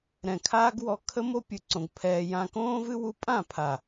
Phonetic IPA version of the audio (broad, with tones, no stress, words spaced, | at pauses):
ɾɛ̃˨kʰaː˦ɡwɔ˧ kʰə˦mo˦ pʲɨ˧ǀõ˧ɡ pʰɛː˧ jã˧kõː˦vɨ˦ wu˧pʼã˦˨ pʰa˨